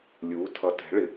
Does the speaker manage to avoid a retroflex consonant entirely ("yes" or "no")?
no